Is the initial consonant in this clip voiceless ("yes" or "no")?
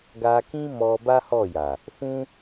no